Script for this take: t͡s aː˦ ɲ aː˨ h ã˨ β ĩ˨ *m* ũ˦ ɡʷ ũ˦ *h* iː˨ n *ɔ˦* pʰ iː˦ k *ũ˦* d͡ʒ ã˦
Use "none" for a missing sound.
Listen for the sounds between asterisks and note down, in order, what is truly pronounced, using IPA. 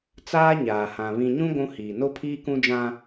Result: ɲ, h, o˦, ũ˦

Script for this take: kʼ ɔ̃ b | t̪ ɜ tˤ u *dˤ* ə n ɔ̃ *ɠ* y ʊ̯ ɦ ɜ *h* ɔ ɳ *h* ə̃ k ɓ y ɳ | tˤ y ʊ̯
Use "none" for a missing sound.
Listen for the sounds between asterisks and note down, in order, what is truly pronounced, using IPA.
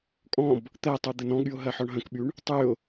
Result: d̪, ɠ, ħ, ɦ

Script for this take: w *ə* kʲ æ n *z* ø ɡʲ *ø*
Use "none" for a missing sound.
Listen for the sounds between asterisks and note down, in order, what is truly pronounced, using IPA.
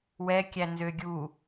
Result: ɛ, z, u

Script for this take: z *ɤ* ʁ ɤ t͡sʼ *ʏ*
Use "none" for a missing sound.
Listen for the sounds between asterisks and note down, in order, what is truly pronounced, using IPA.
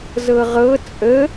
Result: ɤ, ə

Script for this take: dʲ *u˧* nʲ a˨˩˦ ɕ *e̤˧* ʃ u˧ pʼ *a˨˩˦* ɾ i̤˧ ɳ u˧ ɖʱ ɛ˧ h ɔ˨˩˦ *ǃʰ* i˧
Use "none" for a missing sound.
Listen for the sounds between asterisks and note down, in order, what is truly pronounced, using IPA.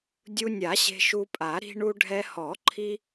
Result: u˧, e̤˧, a˨˩˦, ǃʰ

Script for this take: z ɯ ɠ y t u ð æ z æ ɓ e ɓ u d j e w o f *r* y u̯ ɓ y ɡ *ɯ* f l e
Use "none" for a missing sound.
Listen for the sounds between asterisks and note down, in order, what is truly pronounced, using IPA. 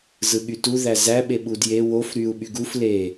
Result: ɾ, u

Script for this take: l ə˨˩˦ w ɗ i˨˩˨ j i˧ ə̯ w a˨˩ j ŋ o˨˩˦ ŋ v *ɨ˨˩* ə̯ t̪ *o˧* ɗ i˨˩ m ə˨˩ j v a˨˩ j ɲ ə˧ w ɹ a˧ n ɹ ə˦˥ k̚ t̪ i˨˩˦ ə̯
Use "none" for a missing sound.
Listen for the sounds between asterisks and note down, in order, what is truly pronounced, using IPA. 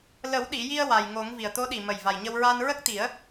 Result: i˨˩, o˧˥

